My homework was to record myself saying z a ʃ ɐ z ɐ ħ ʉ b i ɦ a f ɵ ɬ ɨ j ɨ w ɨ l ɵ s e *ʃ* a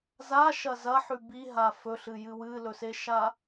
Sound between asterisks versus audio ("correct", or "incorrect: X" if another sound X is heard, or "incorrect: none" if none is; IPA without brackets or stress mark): correct